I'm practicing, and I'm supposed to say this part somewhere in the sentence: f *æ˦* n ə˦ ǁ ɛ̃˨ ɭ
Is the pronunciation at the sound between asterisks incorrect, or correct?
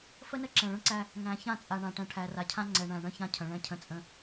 incorrect